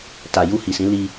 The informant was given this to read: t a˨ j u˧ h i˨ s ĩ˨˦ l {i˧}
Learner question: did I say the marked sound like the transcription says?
yes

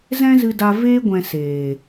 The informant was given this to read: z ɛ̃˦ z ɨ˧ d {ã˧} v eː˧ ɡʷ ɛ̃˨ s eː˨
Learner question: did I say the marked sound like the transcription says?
no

